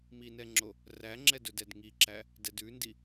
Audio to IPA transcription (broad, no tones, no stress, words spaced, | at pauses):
minɛŋ͡ǁo | ræŋ͡ǁɛdɵ dɛdŋiǁæ | dɛdʉndi